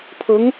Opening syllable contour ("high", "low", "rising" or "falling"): rising